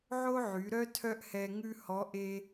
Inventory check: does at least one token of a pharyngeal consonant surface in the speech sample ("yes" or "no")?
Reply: yes